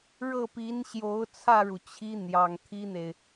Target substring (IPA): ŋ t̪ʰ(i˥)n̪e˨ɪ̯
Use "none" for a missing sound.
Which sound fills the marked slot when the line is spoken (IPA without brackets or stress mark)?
i˥